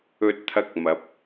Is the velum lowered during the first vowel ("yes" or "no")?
no